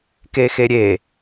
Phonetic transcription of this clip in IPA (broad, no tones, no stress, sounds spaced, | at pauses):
k e x e ɾʲ e